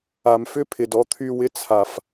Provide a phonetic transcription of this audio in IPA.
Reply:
a˨mfʏ˦pʰɪ˨d ɔ˧t̪ʰy˧ wɪ˦t͡sʰa˧f

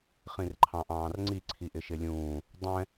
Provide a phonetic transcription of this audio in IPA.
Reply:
χĩrǃʰɑ̃ʔɑ̃ːrŋ͡ǀi ǀʰiʔɪʃɪlʲũː | dˤɛ̃

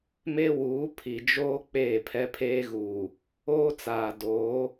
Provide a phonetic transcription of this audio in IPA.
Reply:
me˦wuː˨˦pʰi˨d͡ʒoː˦ k͡peː˦˨pʰɛ˦pʰeː˦ɣuː˨ | oː˦t͡saː˨ doː˨˦

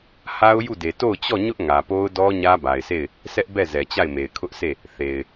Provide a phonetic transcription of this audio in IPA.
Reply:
ha˦ʊ̯ju˦˨de˨ to˦˨ʊ̯t͡ɕɔ˦˨ɲʊ˦ʔ ŋä˨po˦ʊ̯dɔ˦ ɲä˦ba˨ɪ̯se˦˨ɪ̯ | sɛ˦ʔbɛ˦˨ zɛ˨t͡ɕa˦˨ɪ̯me˨ɪ̯ kʰʊ˦ʔse˦˨ | θe˨ɪ̯

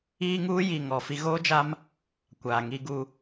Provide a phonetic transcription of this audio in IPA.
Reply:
iː˦ŋ uː˦ji˨ ŋɔ˨ fi˦ ɣoː˦d͡ʒa˦m | kʷaː˨ ŋi˦ɡu˦

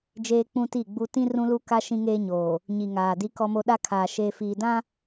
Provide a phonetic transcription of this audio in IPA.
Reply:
d͡ʒeː˦k͡pũ˦ti˦˨ɡ͡bu˦ tĩ˦ rũ˦lu˦ka˦ ʃĩ˦ŋeː˦ɲoː˨ | ɲi˨ŋaː˨ di˦kɔ˦mo˦ ɗa˦kʰaː˨ ʃeː˨fiː˨dã˦

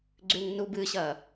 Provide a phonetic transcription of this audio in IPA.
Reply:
ɡ͡ǀʉŋ nubɨɕɐ

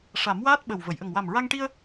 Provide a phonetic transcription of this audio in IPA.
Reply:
ʂa˨˩˦mwaː˦˥t̚ ɓə˨˩w və˨˩˨jʔə˨˩ŋ wa˨˩mɹa˧ŋʈi˧ə̯

